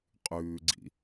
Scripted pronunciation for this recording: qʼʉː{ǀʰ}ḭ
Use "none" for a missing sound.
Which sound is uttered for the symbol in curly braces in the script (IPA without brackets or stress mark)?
ɡ͡ǀ